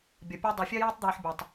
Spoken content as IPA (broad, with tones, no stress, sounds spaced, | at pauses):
bʲ ʌ˨ pʲ ɒ˥ dˤ ɛ˨ fʲ ɜ˥ j ɪː˥ tˤ d̪ iː˨ ħ bʲ ɒ˨ tˤ